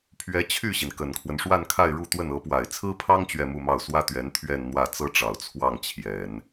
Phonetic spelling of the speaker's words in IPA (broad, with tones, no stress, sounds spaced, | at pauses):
pʰ ɥ ɛ˧˥ t͡ɕʰ y˥˩ ɕ i˩ n k ə˨˩ n kʰ w ə˦ n ʂ w a˥˧ n kʰ a˥˧ ɪ̯ ɻ u˥˧ t̪ w ə˥˩ n ɤ˧˥ p w a˨˩ ɪ̯ t͡sʰ ɹ̩˥ pʰ ɑ˥ ŋ t͡ɕ ɥ ɛ˥˧ m u˥˧ m ɑ˥˩ ʊ̯ s w ä˥ t̪ ɥ ɛ˧˥ n t̪ʰ ɥ ɛ˥˧ n n̪ w ä˥˩ t͡s ɤ˥ ʈ͡ʂ ɑ˨˩ ʊ̯ t͡sʰ w ɑ˥˩ ŋ t͡ɕʰ j ɛ˨˩˦ n